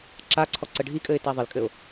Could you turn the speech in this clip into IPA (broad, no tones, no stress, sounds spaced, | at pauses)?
ǁ a ǀʰ ɔ ǀ ə ɖʱ i kʼ ɘ ɪ̯ t a ðˤ ɪ l kʼ ɘ ʊ̯